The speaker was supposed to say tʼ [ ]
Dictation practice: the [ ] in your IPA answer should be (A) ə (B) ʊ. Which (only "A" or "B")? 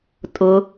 B